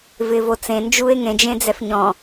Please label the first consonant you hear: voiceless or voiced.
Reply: voiced